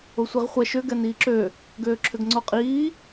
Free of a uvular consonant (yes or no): no